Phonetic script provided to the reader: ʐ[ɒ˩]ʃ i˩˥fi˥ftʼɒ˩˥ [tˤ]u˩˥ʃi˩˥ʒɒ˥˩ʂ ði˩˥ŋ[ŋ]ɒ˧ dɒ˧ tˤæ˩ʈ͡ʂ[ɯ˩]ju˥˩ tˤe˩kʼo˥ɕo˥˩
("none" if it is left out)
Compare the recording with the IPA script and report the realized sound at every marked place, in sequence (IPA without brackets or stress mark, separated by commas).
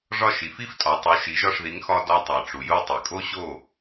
ɒ˥˩, tˤ, x, u˩